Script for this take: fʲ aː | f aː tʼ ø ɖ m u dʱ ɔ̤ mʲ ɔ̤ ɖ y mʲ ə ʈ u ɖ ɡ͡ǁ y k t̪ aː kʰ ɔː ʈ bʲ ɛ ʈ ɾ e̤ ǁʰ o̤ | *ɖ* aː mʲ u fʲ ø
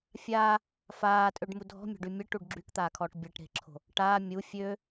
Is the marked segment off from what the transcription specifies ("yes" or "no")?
yes